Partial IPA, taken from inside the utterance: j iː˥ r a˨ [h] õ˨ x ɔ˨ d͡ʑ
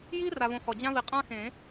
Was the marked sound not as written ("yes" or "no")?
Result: yes